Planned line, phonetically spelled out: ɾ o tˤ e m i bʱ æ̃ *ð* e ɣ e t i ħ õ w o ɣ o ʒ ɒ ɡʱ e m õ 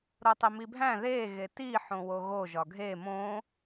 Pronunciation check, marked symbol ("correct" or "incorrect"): correct